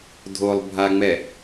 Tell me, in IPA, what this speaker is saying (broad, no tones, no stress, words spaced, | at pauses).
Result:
dʱolˠbʱaŋ͡mɛ